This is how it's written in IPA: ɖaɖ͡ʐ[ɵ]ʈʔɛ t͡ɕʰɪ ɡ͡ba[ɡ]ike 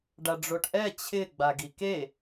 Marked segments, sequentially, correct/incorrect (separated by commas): incorrect, correct